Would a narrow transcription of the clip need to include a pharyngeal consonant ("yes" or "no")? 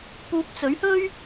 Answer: no